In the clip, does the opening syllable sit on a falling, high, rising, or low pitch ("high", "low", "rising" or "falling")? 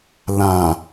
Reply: low